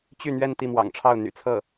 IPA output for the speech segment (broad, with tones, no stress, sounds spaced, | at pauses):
t͡ɕ y˥˧ n̪ ɥ ɛ˥˧ n t̪ i˥˩ m w ɑ̰˨˩ ŋ ʈ͡ʂʰ ɑ˥˩ ʊ̯ n̪ y̰˨˩ t͡sʰ ɤ˥˩